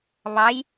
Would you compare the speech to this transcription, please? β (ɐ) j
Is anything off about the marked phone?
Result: yes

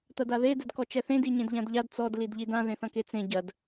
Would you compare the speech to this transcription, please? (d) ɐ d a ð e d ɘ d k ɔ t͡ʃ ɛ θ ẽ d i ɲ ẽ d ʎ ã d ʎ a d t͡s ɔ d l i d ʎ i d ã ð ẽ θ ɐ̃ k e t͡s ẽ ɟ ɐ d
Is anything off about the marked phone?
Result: yes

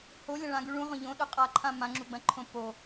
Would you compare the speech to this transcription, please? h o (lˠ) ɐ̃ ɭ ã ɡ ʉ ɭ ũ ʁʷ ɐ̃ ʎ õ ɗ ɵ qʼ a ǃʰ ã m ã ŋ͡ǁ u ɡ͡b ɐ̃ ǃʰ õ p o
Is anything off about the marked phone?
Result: yes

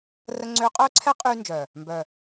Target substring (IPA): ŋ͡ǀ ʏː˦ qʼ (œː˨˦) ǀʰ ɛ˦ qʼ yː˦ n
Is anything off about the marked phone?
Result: yes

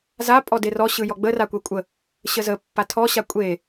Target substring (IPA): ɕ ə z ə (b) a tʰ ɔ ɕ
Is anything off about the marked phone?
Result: yes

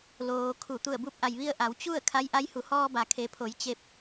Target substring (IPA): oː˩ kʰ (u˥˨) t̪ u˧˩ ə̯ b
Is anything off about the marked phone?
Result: yes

